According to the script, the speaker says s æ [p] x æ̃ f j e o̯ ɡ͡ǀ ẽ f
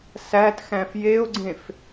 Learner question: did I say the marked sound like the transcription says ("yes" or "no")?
no